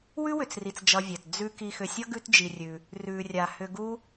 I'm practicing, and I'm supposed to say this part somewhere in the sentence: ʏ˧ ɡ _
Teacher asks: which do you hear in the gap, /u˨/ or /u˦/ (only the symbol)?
u˦